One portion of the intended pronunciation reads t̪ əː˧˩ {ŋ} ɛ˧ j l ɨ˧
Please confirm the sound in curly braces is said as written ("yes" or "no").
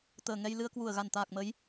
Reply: yes